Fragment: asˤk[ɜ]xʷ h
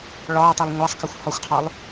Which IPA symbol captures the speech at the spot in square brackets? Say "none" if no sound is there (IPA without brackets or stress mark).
ɜ